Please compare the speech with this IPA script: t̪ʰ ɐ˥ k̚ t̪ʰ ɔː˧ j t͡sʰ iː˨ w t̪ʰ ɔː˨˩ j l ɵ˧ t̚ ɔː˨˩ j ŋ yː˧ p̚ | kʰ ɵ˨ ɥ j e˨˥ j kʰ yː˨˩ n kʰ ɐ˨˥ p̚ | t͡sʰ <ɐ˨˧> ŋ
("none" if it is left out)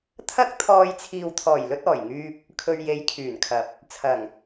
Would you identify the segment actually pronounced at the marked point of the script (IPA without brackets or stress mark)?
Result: ɐ˨˩